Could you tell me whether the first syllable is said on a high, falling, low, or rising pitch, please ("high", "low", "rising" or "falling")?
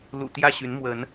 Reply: low